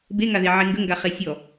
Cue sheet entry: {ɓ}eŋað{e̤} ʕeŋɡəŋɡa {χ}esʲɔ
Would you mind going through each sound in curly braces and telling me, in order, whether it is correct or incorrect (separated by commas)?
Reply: incorrect, incorrect, correct